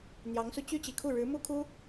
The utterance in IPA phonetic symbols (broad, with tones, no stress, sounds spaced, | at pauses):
n̪ j ɑ˧˥ ŋ s u˧ t͡ɕ y˥ t͡ɕ i˨˩ kʰ u˥˩ ɻ ɻ̩˧˥ m u˥ kʰ u˥